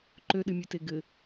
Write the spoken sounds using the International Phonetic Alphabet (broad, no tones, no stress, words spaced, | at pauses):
ǃøɗɨmʲʉte ɡɘ